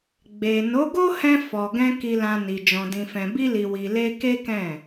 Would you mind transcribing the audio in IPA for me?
ɡ͡b e˨ n o˨˦ ɡ o˦ h ɛ̃˧ f ɔ˨ ɡ ɛ̃˧ k i˨ l ã˨ n i˨ d͡ʒ ɔ̃˨ d ĩ˨ f ɛ̃˨ b i˧ l i˨ w i˨ l e˧ k e˦ k ɛ̃˦˨

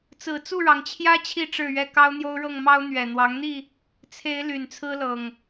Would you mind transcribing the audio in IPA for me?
t͡s ɹ̩˨˩ t͡s u˥˨ ɻ ɑ˩ ŋ t͡ɕʰ j ä˦ t͡ɕʰ i˥˨ ʈ͡ʂ ɻ̩˥˨ ɥ ɛ˥˨ k ɑ˦ ʊ̯ n̪ j o˦ ʊ̯ ɻ ɤ˥˨ ŋ m ɑ˦ ʊ̯ n̪ ɥ ɛ˨˩ n̪ w ɑ˨˦ ŋ n̪ i˥˨ | t͡sʰ e˨˦ ɪ̯ l y˨˩ n t͡sʰ ɹ̩˦ l ɤ˨˩ ŋ

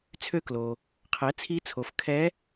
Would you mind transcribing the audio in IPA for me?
t͡sʰ ø˦˨ k l o˩ | qʰ ɛ˩˥ t͡sʰ i˧˥ t͡sʰ o˩˥ f kʰ ɛ˧˥

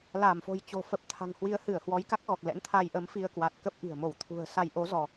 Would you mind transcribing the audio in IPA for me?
l a˧˩ m f o̤˨˩ j t͡ɕ o̤˨˩ f ə˨˩ p̚ t̪ʰ a̤˨˩ ŋ h w i˨˦ ə̯ h ɨ˧˩ ə̯ h w ɔ˨˦ j k a˦˥ k̚ ɣ ɔ˨˩ k̚ l ɛ̰˧˥ n t̪ʰ a˧ j ʔ ə˨˦ m f i˧ ə̯ k w a˨˩ t̚ k ə˦˥ p̚ ʔ i̤˨˩ ə̯ m o˧˩ w t̪ʰ ṳ˨˩ ə̯ s a˧ j ʔ o˨˦ z ɔ˧

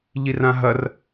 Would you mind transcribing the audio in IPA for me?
ʎ i r ã ɦ ɐ r

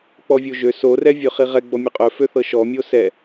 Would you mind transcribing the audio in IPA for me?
k͡p ɔ vʲ o ʒ ø s o r ɛ vʲ ø χ i ʁ ɛ ɡ͡b ɔ mʲ ø qʼ œ f ø θ ɤ ʃ ɔ mʲ o s ɛ

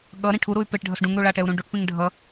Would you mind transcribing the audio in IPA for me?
ɠ ʌ ɾ ĩ ʈʰ u ɾ u y̯ p e ʈ ɖʱ ʌ s ɖ ũ ŋ ɾ u ɭ a ʈ ɛ u̯ ɾ ũ ɖ u ʈ p ĩ ŋ ɖʱ ʌ

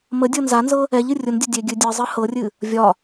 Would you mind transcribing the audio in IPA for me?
m ə dʲ ɤ n z a n z ɤ | ɛ ʎ ɨ rʲ ʊ n dʲ ə dʲ e ɡʲ ɨ dʲ ɨ zˤ ɨ h ɤ rʲ ɨ | vʲ ɒ

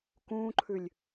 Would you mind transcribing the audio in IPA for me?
k ũː ǃʰ ʉ lʲ

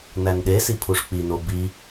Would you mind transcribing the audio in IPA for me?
n æ n ɗ e s i pʰ u ʂ k͡p i n o b i

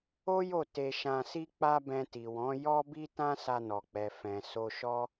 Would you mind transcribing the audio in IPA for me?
o˦ j o˦˨ t e˧ ʃ ã˧ s i˦ k͡p a˦ b ɛ̃˧ t i˨ w ɔ̃˨˦ j ɔ˦ b i˦ t ã˦ s a˧ n ɔ˨ k͡p ɛ˨ f ɛ̃˨ s o˧ ʃ ɔ˦

